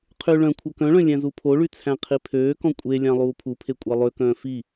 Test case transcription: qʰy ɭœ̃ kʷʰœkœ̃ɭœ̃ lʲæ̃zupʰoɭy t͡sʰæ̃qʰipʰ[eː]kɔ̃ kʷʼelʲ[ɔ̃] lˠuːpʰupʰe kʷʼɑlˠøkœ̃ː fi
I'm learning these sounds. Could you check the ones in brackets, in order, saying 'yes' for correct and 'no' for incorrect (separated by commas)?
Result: no, no